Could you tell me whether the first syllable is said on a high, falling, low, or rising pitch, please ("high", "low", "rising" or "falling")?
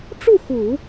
falling